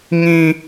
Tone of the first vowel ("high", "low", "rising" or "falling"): high